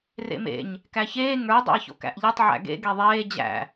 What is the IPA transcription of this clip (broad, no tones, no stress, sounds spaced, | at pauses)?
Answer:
r ḛ m ḛ ɲ | k æ ç eː ŋ ə˞ dˤ ḛ ɐ̯ ç o̰ k æ̰ ʔ ʎ e tˤ ʕ æ̰ ɡ ḛ ɡ e ðˤ eː d͡ʑ æ̰